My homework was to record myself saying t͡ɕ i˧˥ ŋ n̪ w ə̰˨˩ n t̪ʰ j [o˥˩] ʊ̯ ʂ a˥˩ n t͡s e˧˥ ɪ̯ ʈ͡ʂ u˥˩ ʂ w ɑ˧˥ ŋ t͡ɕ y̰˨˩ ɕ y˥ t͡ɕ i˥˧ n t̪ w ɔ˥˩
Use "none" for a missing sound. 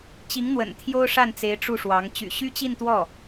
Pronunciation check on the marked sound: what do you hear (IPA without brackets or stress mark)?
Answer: o˥